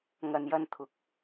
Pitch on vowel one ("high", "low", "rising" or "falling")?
low